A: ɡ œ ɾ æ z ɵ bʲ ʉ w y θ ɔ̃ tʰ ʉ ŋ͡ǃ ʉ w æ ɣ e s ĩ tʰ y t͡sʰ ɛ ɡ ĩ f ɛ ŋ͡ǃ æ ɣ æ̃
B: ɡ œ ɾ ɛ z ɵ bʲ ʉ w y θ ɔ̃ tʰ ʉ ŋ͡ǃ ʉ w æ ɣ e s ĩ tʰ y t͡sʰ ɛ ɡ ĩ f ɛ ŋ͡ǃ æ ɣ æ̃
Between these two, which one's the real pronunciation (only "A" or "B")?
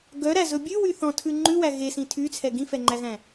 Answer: A